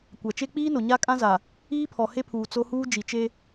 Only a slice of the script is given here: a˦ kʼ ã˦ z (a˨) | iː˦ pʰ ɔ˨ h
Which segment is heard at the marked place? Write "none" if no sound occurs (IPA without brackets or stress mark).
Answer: a˨